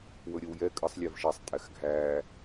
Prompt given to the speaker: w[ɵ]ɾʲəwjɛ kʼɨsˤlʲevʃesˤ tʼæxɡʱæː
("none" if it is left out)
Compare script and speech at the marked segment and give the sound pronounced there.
ɵ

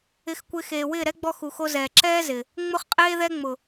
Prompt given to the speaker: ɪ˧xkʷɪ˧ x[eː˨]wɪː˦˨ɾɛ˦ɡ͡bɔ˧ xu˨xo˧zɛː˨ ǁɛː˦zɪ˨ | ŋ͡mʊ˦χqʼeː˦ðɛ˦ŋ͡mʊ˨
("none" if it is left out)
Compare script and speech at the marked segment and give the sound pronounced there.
eː˨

